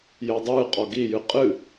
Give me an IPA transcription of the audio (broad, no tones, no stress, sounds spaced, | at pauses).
j əː dˤ ɨː qʼ ɔ ɡ i j ɨ qʼ ɨ